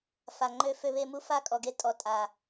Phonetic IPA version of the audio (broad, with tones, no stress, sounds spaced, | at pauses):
f a˨ ŋ͡ǃ ø˦ f ø˦ β e˦ m u˦ f a˦ kʼ ɔ˨ ɡ e˦ tʼ ɔ˨ tʼ a˨